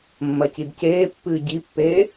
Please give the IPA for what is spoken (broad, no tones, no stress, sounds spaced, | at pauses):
mː ɐ c i d c eː pː ɨː ɟ i pː eː